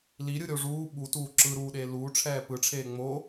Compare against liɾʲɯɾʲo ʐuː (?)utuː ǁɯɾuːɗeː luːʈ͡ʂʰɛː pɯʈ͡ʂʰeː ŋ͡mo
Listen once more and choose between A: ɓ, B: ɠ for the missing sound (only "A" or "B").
A